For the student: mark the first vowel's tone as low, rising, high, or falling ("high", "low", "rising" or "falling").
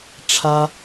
high